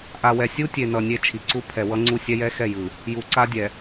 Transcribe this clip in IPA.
ʔ a˨ w ɛ˨ sʲ u˦ tʲ e˨ n ʌ˨ nʲ e˦˨ t͡ʃʰ i˨ ǀ u˦ pʰ ɛ˨ w ʌ˦ ŋ͡ǀ u˦ sʲ ɛ˦ j ɛ˦ x ɛ˦˨ j ɯ˨ | j u˨ ǀ a˦ dʲ ɛ˨

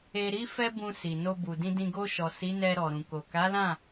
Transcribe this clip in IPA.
e˨ ɾ i˧ f ɛ˦ b ũ˧ s i˨ n o˧ b u˨ d ĩ˧ d ĩ˧ ɡ o˧ ʃ ɔ˨ s i˨˦ n ɛ˧ ɾ ɔ˨ ɾ ũ˨ k o˨ k a˨˦ l ã˦˨

